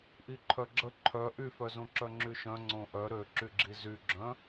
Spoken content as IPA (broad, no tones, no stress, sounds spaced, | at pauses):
ʔ i ǃʰ œ ɡ͡ǁ ə ǃʰ œ ʔ y f œ z õ ǁ œ ŋ͡ǁ y ʃ œ̃ ŋ͡ǀ õ ʔ œ ɾ ø ǁ y ɡ͡ǁ i z y ɡ͡ǁ œ̃